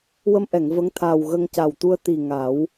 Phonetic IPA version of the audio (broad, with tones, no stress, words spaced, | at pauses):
wə˧mʔɛ˨˩˨ŋ və˧˥ŋt̪ʰaː˨˩w ɣə˧ŋca˨˩wt̪u˧ə̯ t̪i˨˩ ŋa˨˩˦w